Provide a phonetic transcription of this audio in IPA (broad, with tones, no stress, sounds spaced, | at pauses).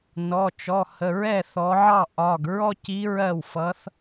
n ɔ˩˧˩ t͡ʃ ɔ˩˧˩ h ə˩˧˩ ɹ ɛ˥˩ θ ɔ˩˧ ʕ ɑ˥˩ ʔ ɒ˩˧˩ ɡ ɹ ɔ˥ c i˧˥ ɹ ɜ˥˩ w f ʌ˧˥ θ